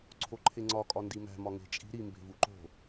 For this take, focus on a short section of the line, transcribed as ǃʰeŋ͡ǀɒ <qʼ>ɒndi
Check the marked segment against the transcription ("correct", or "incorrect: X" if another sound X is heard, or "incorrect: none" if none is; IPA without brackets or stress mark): incorrect: kʼ